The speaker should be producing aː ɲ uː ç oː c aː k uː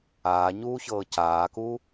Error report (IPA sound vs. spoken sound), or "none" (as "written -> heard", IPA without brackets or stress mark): oː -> ɤː